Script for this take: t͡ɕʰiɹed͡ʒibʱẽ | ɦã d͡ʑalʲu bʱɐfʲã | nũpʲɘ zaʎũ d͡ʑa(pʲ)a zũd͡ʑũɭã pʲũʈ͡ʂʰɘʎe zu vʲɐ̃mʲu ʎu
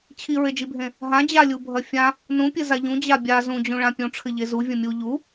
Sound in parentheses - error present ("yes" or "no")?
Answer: yes